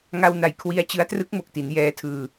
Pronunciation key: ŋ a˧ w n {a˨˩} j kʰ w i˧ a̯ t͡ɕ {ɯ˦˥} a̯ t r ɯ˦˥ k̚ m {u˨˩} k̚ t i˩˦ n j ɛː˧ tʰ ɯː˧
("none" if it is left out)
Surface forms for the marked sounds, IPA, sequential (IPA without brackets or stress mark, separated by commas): a˨˩, ɯ˦˥, o˨˩